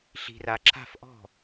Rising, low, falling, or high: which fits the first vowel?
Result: low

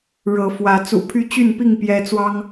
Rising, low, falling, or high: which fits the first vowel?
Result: rising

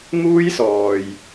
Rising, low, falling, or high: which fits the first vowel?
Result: high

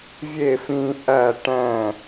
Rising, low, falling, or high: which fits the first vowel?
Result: falling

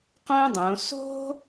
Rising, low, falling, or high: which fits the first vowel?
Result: high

